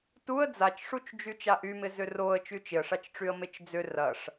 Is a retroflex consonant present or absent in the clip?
present